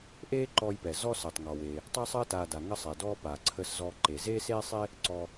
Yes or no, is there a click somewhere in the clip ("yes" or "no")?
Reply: yes